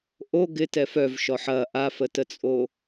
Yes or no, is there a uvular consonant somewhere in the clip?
no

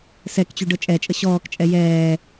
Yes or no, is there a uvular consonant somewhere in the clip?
no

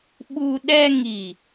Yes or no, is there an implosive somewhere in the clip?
yes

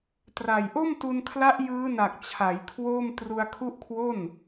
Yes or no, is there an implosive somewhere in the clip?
no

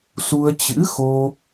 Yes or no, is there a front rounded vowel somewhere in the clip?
no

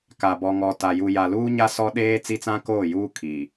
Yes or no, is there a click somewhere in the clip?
no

